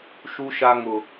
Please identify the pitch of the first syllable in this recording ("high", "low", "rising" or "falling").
high